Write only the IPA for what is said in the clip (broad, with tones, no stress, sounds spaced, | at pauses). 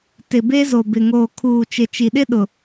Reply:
t ɪ˨ b e˦ z o˨ b ɪ˨ ŋ oː˨ kʰ uː˨ t͡ʃ ɪ˨ t͡ʃ i˨ ɗ ɪ˦ ɗ ʊ˨